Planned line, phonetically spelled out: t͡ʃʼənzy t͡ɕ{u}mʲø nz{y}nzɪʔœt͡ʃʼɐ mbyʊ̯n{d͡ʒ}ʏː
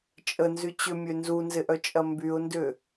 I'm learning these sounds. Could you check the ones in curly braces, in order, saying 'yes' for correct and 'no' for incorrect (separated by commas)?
no, no, no